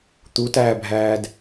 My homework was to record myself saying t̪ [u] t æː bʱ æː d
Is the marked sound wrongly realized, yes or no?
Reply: no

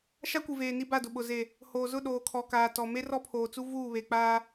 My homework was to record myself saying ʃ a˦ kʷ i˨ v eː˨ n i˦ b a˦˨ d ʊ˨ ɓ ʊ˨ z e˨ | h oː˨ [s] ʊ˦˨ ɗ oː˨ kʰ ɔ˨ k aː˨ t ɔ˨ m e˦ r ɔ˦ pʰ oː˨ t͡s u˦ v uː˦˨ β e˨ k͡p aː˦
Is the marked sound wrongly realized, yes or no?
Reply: yes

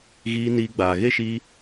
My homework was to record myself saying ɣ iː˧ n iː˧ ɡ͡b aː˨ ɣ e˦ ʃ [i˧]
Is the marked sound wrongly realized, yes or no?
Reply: no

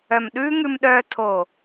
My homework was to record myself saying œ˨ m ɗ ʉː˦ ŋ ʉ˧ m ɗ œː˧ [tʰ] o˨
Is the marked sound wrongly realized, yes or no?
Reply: no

